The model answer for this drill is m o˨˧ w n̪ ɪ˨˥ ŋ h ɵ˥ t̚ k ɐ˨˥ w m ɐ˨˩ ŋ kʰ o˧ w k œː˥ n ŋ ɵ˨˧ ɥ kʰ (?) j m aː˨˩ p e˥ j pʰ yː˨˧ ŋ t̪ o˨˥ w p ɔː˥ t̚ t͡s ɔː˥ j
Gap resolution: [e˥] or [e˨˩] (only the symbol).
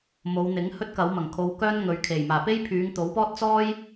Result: e˨˩